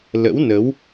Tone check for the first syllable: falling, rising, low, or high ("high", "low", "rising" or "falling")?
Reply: rising